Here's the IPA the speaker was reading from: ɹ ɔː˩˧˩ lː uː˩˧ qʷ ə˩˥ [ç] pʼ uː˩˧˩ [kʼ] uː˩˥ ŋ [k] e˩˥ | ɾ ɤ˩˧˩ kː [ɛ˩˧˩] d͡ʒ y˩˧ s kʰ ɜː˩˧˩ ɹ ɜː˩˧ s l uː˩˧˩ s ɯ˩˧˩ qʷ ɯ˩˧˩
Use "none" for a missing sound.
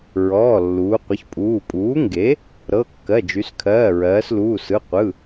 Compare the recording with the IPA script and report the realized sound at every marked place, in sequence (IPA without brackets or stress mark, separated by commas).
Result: ç, pʼ, ɡ, ɜ˩˧˩